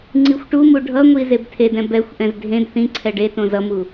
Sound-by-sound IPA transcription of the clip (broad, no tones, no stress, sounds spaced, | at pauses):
ŋ͡ǀ i xʷ ʈ u m u ɖʱ ʌ ŋʷ i z e b tʰ e d ɛ̃ b ɛ xʷ ʔ ɛ̃ z dʱ ẽ d θ ĩ ǀʰ ɛ ɖ e t õ z ʌ m u